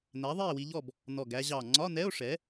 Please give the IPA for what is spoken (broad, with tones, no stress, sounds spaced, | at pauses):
n æ˩˥ ðˤ i˥˨ e̯ w i˧ ʎ ɔ˥˨ b | n ɔ˨˩ ɡ æ˧ ʑ ɑ˨˩ ŋ͡ǀ ɒ˧˥˧ n ɛ˧˥˧ o̯ ʂ ɛ˩˥